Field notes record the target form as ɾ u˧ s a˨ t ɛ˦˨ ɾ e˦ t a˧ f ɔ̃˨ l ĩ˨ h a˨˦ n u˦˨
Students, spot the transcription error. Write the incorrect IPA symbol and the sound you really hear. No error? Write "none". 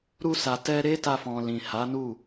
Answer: ɛ˦˨ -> ɛ˧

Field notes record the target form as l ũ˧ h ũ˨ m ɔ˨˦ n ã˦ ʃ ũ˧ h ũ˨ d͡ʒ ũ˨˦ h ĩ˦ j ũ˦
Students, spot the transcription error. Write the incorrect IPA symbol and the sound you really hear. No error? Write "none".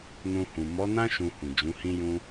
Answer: l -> n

